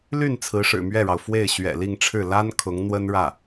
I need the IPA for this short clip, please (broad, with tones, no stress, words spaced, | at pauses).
ly˥˩n t͡sʰɹ̩˧˥ʂɻ̩˨˩mɥɛ˥˩ɻɑ˩ʊ̯ fwe˥˩ɪ̯ɕɥɛ̰˨˩li˥˧ŋʈ͡ʂʰɻ̩˥˩ la˥n kʰʊ˧˥ŋn̪wə˥nɻä˥˩